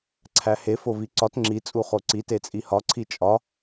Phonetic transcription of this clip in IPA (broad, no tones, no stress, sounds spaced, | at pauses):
ǀʰ æ h e f o v i ǀ ɒ t ŋ͡ǁ i t͡sʼ u χ o ǀ i t e t͡sʼ i h ɒ ǀʰ i t͡ʃʼ ɒ